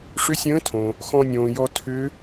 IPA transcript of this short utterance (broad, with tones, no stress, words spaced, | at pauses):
ʂʏ˧˥sʲə̃ː˧˥tʰõ˩ | xɔ̃˧nʲõː˩jɔ˧ tʰʏ˧˥